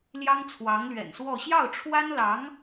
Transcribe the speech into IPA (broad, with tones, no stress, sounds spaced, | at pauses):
l j ɑ˥ ŋ t͡sʰ w ɑ˧˥ ŋ l ɥ ɛ̰˨˩ n s w ɔ˥˧ ɕ j ɑ˥˩ ʊ̯ ʈ͡ʂʰ w a˥ n l ɑ˧˥ ŋ